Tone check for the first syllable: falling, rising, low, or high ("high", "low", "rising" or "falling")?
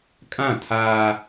falling